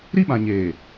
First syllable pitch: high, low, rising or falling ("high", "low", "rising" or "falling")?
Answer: high